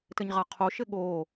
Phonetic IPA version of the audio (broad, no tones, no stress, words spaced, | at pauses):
tɘɲʁaqʰoʃɘ ɠo